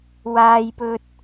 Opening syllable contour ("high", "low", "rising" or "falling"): high